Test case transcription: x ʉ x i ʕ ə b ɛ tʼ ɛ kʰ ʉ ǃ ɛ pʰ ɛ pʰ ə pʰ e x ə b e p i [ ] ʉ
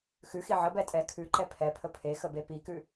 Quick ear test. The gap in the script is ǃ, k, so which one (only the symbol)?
k